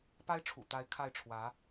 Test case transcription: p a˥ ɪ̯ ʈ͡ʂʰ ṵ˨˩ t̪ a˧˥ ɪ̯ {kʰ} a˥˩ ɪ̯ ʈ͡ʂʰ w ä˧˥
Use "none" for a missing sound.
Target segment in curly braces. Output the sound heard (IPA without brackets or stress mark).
kʰ